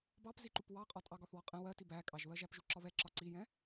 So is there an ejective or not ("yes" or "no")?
yes